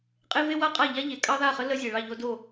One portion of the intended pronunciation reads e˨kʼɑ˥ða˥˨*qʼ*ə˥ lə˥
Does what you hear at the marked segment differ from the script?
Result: yes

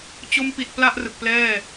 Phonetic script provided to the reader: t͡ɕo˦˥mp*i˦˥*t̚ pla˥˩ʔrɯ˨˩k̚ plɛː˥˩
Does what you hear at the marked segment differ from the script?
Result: yes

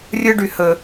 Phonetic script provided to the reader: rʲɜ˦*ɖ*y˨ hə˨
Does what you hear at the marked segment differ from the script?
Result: no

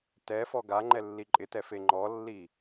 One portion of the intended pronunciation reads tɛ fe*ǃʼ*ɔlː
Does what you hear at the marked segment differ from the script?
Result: yes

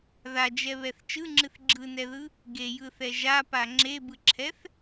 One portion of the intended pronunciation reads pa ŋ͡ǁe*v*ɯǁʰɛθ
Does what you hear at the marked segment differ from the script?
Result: yes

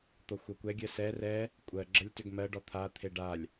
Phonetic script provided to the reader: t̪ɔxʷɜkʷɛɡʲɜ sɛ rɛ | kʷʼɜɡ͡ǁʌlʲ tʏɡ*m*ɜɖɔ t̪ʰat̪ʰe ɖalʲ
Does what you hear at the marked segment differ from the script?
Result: no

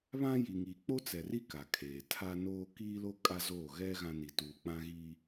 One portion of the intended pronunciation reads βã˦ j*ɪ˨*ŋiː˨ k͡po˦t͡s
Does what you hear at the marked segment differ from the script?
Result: yes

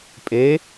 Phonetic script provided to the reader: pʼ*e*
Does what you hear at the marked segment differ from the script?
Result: no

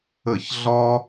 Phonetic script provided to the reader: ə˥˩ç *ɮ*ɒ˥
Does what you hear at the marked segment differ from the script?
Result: no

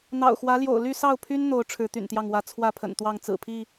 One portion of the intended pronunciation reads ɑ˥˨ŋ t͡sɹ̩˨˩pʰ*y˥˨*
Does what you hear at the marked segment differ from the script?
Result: yes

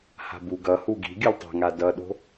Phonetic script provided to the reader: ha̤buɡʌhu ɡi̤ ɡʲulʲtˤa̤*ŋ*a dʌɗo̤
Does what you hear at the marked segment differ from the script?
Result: no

